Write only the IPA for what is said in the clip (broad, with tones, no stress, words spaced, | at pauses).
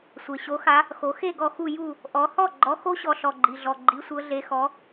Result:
sʷe˩ɕo˨˥xa˨˥ | xo˩˧ xe˥˨ ɡɔ˥˨xu˥˨ ju˥˨ | ʔɔ˩˧hɔ˥˨ ɡ͡ǃɔ˨˥xo˦˥ɕɔ˩˧ ɬɔ˩ɡ͡ǃi˩ɮɔ˩ ɡ͡ǃi˩˧sʷɤ˩˧ɮe˩˧xɔ˩˧